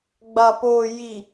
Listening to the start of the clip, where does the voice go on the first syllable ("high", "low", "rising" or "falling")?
low